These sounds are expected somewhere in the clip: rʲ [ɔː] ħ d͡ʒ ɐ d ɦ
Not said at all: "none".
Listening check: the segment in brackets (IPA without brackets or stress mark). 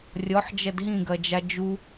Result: ɔ